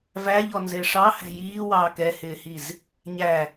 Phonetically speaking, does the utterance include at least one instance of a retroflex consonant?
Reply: yes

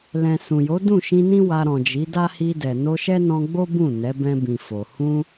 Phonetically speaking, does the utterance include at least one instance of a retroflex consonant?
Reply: no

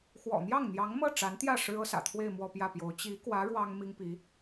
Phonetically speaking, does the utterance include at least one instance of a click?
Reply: no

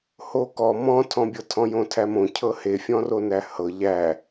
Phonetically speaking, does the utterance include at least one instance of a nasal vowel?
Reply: yes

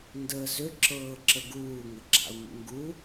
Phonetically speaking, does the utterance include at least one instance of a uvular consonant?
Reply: no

